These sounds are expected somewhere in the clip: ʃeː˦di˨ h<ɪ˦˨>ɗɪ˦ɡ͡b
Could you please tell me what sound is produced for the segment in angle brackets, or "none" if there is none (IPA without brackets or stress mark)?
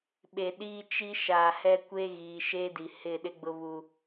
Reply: ɪ˦˨